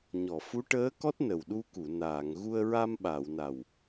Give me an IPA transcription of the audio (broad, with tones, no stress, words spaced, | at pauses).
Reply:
ɲɔ˨˩˨fu˧˥ʈəː˧˥kɔ˦˥t̚ nə˨˩wɗu˧ku˨˩˨ naː˨˩˨ŋɣu˧ə̯ ɹa˧mɓa˨˩˨w na˨˩w